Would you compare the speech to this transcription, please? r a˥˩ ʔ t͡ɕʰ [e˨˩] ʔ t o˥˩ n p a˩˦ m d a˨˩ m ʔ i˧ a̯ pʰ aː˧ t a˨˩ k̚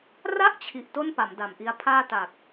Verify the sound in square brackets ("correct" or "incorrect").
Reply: incorrect